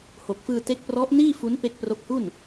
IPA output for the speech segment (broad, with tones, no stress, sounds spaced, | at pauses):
h o˨˩ k̚ f ɯː˧ t e˦˥ k̚ p r ɔ˦˥ ʔ n iː˥˩ f u˦˥ n p e˦˥ k̚ p r o˦˥ k̚ h u˥˩ n